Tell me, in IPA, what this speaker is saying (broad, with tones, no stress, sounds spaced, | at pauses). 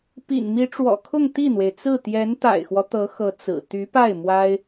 p ḭ˨˩ n m i˧˥ ʈ͡ʂ w ɔ̰˨˩ kʰ ʊ˥˧ ŋ t̪ i˥˩ n̪ w e˩ ɪ̯ t͡s ɹ̩˥˩ t̪ j ɛ˧˥ n t̪ a̰˨˩ ɪ̯ x w ɔ˦ t̪ ɤ˧˥ x ɤ˧˥ t͡s ɹ̩˨˩ t̪ y˧˥ p a˥˩ ɪ̯ m w a˥ ɪ̯